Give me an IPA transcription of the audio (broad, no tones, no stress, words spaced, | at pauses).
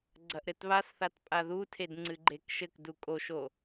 ɡ͡ǀɐʔɾɘtβasθat pʼaðutʰed ŋ͡ǀɨɡ͡ǃekʃɘkdu kʼoʃo